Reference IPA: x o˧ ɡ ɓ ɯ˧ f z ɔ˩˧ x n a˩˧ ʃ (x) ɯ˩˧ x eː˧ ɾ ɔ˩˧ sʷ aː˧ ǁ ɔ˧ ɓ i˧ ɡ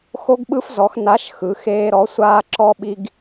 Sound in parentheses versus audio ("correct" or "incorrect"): correct